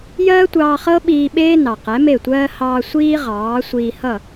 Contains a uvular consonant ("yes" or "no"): yes